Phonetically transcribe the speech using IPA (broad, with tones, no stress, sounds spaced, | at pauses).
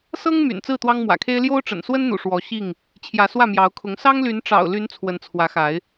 s ɤ˦ ŋ m y̰˨˩ n t͡s ɹ̩˥˨ t̪ w ɑ˦ ŋ m w ä̰˨˩ kʰ e˦ ɪ̯ l j o˦ ʊ̯ ʈ͡ʂ ə̰˨˩ n s w ə˦ n n̪ ṵ˨˩ ʂ w ɔ˨˦ ɕ i˥˨ ŋ | t͡ɕʰ j ä˨˦ s w ä˥˨ m j ɑ˨˦ ʊ̯ kʰ ʊ˨˦ ŋ s ɑ˦ ŋ l y˨˦ n ʈ͡ʂ ɑ̰˨˩ ʊ̯ l y˨˦ n t͡sʰ w ə˨˦ n t͡sʰ w ä˨˦ x a˨˦ ɪ̯